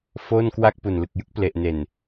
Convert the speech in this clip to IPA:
foː˥˩nkwa˥˩k̚ pu˨˩nlɯ˨˩k̚jɯ˥˩k̚ ple˨˩ʔne˨˩n

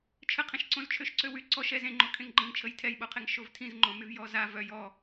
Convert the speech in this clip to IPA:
t͡ʃʰəqʰẽʃ ǀõzt͡ʃʰøʃǀøwy ǀɔʃ ɛz ẽŋ͡ǃo kʰẽŋɡ͡ǃə̃ŋt͡ʃʰəj tʰɛjɓoqʰeŋ ʃovtʰĩzŋ͡ǃõ myvjɔza vœj ɔ

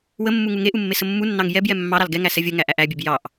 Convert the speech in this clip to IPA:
wəmːu ŋuŋeʔu mːesəmːunːɑŋ jɛbjɛ mːɑɾɑl ɡɛŋæ sɛvʲəŋæ ʔæʔæbʲeb jɑʔ

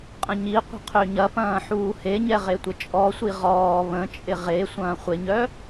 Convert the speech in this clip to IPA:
qʼə̃ɲiqʷə̤ qʰøɲɐpɐ̃ː ħuːheɲɛ ʁetʷət͡ʃʼɔsʷi ʁɔː βə̃t͡ʃʼɪ ʁe sʷɐ̃ːχʷɪɲœ

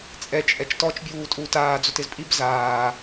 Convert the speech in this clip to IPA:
t͡sʼɛ t͡ʃʼɛt͡ʃtɔt͡ʃ bʲuːtʼuːtaː d͡zotɪzpʼib zaː

